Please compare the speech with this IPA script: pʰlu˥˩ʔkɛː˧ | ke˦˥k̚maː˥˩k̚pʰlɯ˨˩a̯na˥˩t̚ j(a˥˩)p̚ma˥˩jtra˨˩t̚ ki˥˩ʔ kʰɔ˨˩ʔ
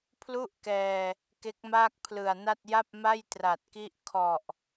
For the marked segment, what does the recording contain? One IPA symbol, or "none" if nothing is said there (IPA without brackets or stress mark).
a˥˩